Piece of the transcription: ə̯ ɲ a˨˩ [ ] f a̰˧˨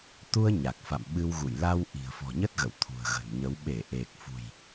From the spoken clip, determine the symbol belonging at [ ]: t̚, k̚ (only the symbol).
k̚